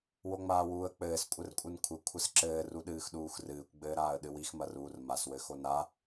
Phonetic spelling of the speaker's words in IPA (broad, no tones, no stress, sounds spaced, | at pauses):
w o ŋ͡m aː w uː ə̯ k͡p ɘː s kʷʼ ɘ r kʷʼ ɨ n kʷʰ ɘ kʷʰ ɘ s ǁ ɘː r u ɗ ɨː x ɗ uː x r ɨː kʷ ɡ͡b ɘː ɾ aː ə̯ ɗ ɨ w i x m ɐ r uː r m a s w ɘ x o n a